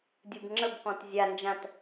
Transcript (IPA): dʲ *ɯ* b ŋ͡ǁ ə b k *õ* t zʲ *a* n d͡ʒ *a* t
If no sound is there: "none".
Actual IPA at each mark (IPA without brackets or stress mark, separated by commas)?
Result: ɯ, ɔ̃, a, ã